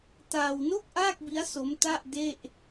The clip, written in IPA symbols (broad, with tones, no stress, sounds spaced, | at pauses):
t aː˧ w n o˥˩ k̚ ʔ aː˥˩ k̚ b i˦˥ a̯ s o˦˥ m t a˥˩ ʔ d e˥˩ ʔ